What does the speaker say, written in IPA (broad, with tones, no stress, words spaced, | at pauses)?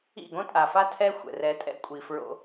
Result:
ḭ˦˨ɡõ˦tʼa˨fa˦ tʰɛ˦xʷɛ̰˨ rɛ˨˦tʼɛ̰˦kʷʼi˨ fɹo̰˦